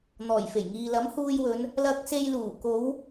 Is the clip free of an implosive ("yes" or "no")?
yes